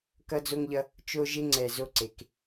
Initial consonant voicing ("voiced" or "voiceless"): voiceless